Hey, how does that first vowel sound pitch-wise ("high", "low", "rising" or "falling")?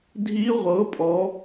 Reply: rising